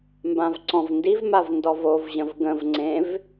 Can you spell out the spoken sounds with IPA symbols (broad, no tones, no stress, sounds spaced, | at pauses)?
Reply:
m b ã v ǀ ɔ̃ v n d i v m a v n d ɔ v o v ʑ ə̃ v ɡ ə̃ v ŋ͡ǀ ẽ v